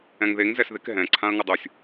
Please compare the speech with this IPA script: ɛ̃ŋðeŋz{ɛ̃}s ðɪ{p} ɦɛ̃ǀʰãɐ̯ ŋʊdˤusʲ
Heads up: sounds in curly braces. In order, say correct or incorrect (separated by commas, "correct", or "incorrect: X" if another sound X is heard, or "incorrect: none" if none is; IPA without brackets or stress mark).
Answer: incorrect: ɛ, incorrect: k